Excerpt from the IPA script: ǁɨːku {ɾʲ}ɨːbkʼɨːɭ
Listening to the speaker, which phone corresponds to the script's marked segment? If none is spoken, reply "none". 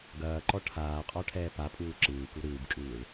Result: ɾ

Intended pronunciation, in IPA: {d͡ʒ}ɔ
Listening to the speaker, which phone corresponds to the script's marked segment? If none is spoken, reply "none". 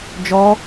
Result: d͡ʒ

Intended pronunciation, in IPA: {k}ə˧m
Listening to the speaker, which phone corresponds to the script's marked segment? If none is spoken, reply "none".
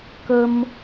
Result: k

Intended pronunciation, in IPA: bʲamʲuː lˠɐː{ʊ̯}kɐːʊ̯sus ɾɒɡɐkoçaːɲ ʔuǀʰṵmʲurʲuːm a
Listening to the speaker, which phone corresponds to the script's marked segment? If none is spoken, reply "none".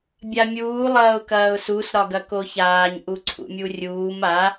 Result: ʊ̯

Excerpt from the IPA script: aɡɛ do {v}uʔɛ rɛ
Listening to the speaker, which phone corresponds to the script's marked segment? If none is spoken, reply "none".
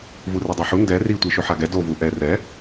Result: v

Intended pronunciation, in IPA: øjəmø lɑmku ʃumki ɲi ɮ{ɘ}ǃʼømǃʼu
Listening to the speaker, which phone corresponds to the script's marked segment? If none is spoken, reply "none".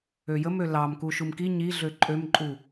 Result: ø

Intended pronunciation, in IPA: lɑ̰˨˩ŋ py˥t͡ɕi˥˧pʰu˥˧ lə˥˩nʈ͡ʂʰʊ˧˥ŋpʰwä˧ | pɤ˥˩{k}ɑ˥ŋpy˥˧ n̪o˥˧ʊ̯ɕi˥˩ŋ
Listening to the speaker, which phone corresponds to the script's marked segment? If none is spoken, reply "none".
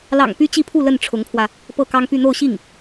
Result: k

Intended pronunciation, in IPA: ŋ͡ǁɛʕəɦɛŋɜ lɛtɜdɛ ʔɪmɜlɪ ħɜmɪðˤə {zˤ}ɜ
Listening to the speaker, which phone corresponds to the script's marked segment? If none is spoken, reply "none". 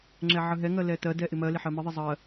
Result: zˤ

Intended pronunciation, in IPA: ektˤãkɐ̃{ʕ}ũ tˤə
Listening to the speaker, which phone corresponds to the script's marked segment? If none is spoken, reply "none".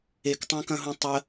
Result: ɦ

